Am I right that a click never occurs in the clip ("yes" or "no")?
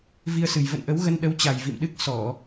yes